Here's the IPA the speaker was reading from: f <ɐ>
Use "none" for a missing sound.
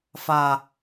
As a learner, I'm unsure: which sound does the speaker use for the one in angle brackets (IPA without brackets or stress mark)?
a